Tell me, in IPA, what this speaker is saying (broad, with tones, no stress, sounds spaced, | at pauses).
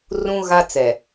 r ũ˦ ɣ a˦ t͡s ɛ˨